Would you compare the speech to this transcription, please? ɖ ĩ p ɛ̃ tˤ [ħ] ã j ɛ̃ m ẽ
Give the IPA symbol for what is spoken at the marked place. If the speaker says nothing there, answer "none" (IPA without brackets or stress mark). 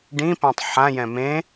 ħ